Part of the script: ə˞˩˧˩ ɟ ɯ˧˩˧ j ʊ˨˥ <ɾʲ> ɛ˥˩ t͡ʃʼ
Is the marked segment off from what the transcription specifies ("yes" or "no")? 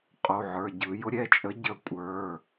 no